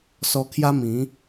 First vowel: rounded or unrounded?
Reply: rounded